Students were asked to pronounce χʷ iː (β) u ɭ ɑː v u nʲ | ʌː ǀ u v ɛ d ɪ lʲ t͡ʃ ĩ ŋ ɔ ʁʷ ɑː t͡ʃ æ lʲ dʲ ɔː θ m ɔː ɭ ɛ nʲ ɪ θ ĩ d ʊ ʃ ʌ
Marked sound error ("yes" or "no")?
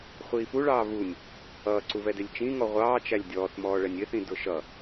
yes